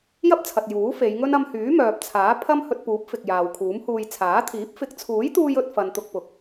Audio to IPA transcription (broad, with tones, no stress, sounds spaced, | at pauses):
j ɐ˥ p̚ t͡sʰ ɐ˨ t̚ j uː˨˥ f e˨˧ j ŋ ɵ˥ n ɐ˧ m h yː˨˥ m œː˨ p̚ t͡sʰ aː˨˥ pʰ ɐ˥ m h ɵ˧ t̚ p uː˨˥ p̚ f ɪ˨ k̚ j aː˨ w kʰ uː˨˥ m h uː˧ j t͡sʰ aː˨˥ t̪ʰ iː˨˥ p̚ f ɪ˨˥ k̚ t͡sʰ uː˨˥ j t̪ uː˧ j ɵ˧ t̚ f ɐ˨ n t̪ ʊ˧ k̚ p ʊ˨˥ k̚